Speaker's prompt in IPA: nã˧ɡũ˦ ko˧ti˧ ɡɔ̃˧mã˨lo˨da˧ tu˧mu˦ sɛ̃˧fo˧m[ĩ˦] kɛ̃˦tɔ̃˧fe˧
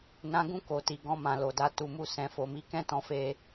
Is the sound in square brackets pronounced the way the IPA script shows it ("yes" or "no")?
no